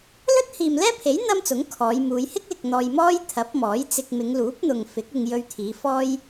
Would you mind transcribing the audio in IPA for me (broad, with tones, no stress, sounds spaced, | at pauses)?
l ɵ˥ t̚ h iː˨ m l ɛː˥ pʰ e˨˥ j n̪ ɐ˥ m t͡s ʊ˨˥ ŋ kʰ ɔː˨˧ j m uː˨˧ j h ɪ˥ k̚ l ɪ˨ k̚ n̪ ɔː˧ j m ɔː˥ j t̪ʰ ɐ˨˥ p̚ m ɔː˨˥ j t͡s ɪ˧ k̚ m ɪ˨˧ ŋ l uː˨˥ p̚ n̪ ʊ˨ ŋ f ɪ˨˥ k̚ ɪ˧ ŋ j ɵ˧ ɥ t̪ʰ iː˨˧ f ɔː˥ j